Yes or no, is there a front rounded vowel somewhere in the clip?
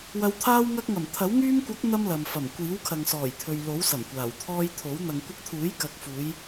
yes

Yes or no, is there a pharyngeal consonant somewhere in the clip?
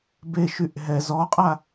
no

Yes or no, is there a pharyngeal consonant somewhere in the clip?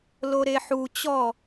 yes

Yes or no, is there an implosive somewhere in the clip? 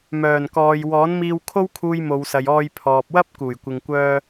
no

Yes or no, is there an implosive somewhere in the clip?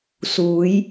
no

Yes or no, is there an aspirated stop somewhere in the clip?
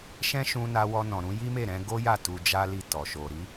no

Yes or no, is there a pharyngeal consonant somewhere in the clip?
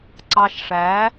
no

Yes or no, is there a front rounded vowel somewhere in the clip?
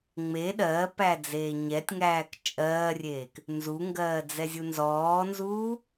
no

